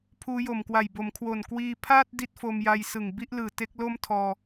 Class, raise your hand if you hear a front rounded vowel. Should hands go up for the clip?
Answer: no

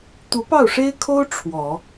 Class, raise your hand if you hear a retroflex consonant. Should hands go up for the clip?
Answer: yes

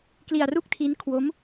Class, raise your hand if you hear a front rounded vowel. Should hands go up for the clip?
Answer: no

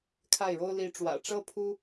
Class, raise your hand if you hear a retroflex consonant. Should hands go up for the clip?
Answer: yes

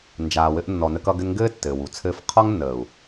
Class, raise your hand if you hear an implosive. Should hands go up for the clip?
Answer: no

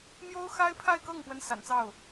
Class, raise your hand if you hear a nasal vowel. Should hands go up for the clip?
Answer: no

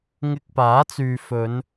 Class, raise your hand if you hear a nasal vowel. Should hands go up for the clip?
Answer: no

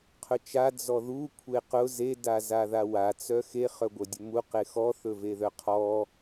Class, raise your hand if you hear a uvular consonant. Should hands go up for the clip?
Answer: yes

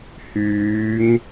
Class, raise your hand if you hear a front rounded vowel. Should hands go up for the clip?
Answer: yes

